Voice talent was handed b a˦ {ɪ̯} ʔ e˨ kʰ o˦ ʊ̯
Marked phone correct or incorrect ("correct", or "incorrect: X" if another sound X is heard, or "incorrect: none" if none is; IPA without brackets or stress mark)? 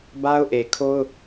incorrect: ʊ̯